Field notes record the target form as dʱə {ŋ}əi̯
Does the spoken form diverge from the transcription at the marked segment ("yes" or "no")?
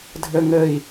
no